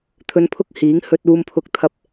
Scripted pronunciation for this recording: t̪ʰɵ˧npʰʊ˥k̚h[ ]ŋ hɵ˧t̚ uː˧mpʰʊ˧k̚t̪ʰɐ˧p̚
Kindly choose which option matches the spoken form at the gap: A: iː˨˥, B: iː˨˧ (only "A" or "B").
A